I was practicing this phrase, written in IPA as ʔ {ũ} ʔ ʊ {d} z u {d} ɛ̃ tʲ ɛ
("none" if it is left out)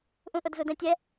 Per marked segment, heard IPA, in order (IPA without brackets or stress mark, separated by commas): ũ, d, d